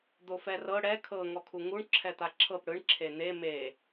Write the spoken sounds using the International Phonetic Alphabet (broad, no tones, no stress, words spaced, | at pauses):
d̪ofɛrɤ ɽɛ kʰɤ ŋɔkʰuŋuɳ ǁʰɛt̪aǁʰɤp ɽɯɳ ǁʰen̪e me